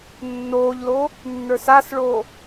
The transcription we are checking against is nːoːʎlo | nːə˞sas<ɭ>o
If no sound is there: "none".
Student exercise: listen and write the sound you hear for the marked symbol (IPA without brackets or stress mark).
ɭ